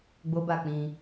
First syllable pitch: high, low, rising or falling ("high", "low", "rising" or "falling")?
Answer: high